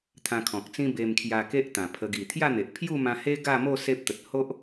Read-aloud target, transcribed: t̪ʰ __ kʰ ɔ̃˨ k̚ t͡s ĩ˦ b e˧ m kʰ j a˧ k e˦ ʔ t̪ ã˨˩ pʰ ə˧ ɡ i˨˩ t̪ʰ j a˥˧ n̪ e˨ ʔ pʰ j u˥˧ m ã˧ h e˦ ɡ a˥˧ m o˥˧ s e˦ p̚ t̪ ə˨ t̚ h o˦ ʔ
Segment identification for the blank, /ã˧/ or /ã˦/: ã˧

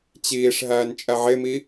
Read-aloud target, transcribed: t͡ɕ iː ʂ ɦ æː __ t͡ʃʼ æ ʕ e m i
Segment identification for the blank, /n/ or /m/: n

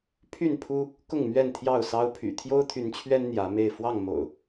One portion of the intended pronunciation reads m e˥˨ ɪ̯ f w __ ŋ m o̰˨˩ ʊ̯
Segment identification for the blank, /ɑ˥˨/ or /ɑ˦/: ɑ˥˨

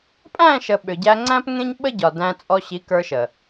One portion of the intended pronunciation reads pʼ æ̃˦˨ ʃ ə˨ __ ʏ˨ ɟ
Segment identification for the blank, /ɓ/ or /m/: ɓ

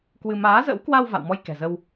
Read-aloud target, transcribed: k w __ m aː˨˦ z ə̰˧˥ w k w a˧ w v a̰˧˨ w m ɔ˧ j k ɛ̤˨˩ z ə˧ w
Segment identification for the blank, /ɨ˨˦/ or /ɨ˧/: ɨ˧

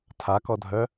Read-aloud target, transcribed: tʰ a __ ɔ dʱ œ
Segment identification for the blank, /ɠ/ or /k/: k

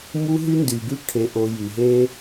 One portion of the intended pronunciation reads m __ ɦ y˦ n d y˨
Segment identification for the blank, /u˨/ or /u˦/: u˦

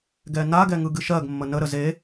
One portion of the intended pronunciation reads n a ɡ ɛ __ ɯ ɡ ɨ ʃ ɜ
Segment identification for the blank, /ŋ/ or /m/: ŋ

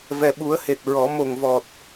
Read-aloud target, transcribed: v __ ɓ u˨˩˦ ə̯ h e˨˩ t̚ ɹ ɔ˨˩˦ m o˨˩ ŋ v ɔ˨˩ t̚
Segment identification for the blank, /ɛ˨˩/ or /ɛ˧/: ɛ˨˩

